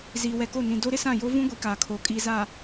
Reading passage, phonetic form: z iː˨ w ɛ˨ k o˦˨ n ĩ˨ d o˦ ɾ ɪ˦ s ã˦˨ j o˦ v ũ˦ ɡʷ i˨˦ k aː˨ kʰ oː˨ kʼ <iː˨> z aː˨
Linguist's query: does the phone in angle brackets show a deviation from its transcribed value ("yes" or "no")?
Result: no